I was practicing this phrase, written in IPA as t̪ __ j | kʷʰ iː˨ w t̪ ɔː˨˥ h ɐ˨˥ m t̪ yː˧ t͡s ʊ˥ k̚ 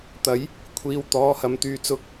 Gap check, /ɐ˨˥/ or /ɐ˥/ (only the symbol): ɐ˨˥